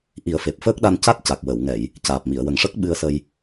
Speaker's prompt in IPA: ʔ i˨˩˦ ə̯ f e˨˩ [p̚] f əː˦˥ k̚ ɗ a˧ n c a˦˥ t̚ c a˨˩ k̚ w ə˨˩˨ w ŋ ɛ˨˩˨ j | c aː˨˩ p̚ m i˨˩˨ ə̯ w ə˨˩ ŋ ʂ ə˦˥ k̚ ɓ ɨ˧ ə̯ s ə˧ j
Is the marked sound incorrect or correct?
correct